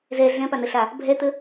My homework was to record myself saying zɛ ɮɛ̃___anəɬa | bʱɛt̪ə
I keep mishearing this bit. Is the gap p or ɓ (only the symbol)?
p